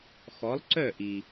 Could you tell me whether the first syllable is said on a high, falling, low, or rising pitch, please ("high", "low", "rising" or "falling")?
rising